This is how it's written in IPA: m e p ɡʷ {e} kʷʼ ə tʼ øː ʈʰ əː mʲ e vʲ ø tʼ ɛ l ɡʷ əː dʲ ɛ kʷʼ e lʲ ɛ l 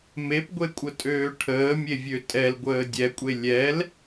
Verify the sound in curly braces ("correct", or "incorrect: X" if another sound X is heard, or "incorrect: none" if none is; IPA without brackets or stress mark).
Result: correct